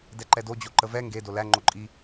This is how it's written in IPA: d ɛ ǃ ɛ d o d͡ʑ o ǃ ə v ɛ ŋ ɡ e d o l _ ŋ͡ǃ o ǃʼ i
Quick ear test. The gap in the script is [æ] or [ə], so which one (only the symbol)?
æ